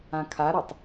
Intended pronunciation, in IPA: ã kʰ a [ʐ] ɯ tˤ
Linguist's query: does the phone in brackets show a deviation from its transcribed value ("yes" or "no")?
yes